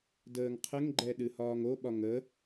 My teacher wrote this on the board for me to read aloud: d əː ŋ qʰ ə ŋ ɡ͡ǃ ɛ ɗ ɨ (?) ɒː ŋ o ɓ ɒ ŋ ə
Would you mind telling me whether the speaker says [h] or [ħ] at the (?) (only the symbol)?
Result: h